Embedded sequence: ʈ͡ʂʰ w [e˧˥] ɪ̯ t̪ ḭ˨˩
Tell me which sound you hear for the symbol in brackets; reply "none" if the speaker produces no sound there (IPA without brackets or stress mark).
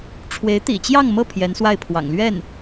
e˧˥